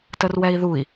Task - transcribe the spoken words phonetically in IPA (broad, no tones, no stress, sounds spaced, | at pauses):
t ə r w ɛ i̯ ð u i̯